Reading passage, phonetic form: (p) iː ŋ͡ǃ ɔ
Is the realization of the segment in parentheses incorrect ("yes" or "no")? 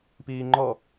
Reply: no